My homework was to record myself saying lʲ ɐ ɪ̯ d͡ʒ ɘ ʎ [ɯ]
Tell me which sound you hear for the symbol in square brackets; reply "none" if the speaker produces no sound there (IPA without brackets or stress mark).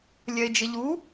u